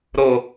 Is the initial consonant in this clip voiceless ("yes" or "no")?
no